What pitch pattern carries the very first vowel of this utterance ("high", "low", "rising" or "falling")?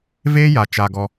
high